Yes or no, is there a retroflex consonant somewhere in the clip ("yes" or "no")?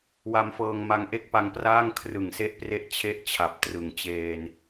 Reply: no